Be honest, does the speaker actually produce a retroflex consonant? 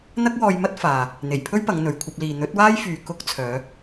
no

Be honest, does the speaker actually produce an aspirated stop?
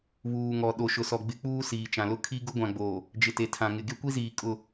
yes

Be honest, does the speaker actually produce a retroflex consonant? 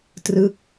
no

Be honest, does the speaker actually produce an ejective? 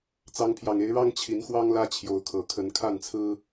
no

